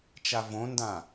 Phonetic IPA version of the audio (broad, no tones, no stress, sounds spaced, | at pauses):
t͡ʃ a v õ n d ã